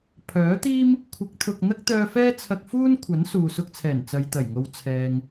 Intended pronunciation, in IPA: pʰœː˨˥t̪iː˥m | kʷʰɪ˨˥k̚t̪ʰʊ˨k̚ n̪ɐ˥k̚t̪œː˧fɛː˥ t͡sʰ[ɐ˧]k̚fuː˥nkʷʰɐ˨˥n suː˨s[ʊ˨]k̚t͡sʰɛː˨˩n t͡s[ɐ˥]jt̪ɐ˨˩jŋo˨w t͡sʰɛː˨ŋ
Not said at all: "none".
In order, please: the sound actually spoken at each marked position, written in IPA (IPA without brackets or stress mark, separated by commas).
ɐ˧, ʊ˧, ɐ˨